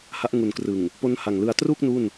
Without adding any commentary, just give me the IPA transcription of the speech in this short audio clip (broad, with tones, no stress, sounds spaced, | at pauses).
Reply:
h a˦˥ ʔ ŋ u˨˩ n k r ɯ˨˩ ŋ | p o˦˥ n h a˨˩ ŋ l ɯ˧ a̯ t r u˥˩ k̚ n u˥˩ n